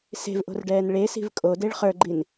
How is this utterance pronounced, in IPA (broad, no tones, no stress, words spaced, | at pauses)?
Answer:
se̤vʔo̤rɖɛːn ɭesi̤v kʼodeɭ χə˞ɡ͡ǃin